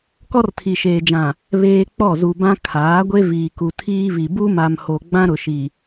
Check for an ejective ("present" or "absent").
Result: absent